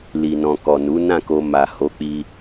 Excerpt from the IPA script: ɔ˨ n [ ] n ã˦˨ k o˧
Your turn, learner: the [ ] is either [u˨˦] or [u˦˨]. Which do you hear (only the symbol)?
u˨˦